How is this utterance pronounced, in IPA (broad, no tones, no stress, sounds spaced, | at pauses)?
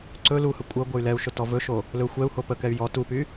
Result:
ǀ ɵ l u h ə kʷʼ ə ɡʷ ə y̯ l ɛ u̯ ʃ ɵ t ɔ v ɵ ʃ o | l ɵ xʷ ɛ u̯ h o p ə k ɛ y̯ j ɔ t u p y